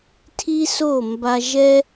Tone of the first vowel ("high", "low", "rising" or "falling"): high